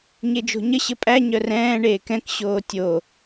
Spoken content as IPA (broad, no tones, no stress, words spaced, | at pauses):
ɲed͡ʒo̤ɲə ɕəpʼæ ɲœrɛ̃ː ɳeːkɛ̃k ɕoːtʲo